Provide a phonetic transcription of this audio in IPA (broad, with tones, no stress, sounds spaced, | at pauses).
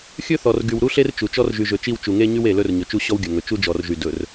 xʲ ɵ˦ θ ɔ˨ r ɡ y˨ w ɾ u˦ ɬ e˦ r t͡ʃ u˨ t͡ʃ ɔ˦ r ʒ y˨ ʒ ɵ˨ t͡ʃ i˦˨ w t͡ʃ u˨ ŋ e˦ ɲ y˦ w e˨ l ɵ˦ r ɲ ɵ˨ t͡ʃ u˦ ɕ ɔ˦ w ɡʲ ɵ˨ ŋ ɵ˨ t͡ʃ u˦ d͡ʒ ɔ˨ r ʒ y˨ d ɵ˨ r